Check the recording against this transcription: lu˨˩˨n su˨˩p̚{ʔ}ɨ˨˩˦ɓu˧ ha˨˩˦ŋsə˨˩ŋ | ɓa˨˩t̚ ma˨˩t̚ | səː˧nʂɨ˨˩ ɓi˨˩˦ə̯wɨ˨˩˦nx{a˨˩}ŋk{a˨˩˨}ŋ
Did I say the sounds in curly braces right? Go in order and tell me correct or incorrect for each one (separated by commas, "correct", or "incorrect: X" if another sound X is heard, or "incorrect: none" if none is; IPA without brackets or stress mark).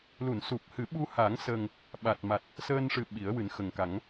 incorrect: h, incorrect: ə˨˩, incorrect: a˨˩˦